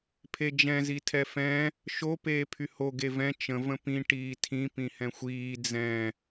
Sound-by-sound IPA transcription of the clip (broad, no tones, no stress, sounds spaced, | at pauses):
pʰ e d͡ʒ ɛ̃ z i tʰ ɛ f ɛ̃ | ʃ o p eː pʰ y h o ɡ e v ɛ̃ t͡ʃ ə̃ v ə̃ p ĩ ʈ iː tʰ ĩ p ĩ h ɛ̃ xʷ iː d͡z ɛ̃